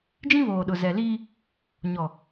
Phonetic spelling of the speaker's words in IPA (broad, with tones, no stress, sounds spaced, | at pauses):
d͡ʒ ĩ˦ β oː˨ ɗ ʊ˨ z ɛ˨ l iː˦ | ɲ ɔ˨